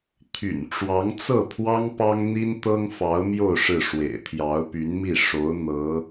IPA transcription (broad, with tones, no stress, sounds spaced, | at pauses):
t̪ʰ y̰˨˩ n ʈ͡ʂ w ɑ˧˥ ŋ t͡s ɤ˥˩ pʰ w ɑ˥ ŋ p ɑ˥ ŋ n̪ i˥ n t̪ ɤ˥ ŋ f ɑ˧˥ ʊ̯ m j o˥˧ ʊ̯ ʂ ɻ̩˥˩ ʂ w ḛ˨˩ ɪ̯ t̪ʰ j ɑ˧˥ ʊ̯ p y˧˥ n m i˥˩ ʂ o˧˥ ʊ̯ n̪ ɤ˧˥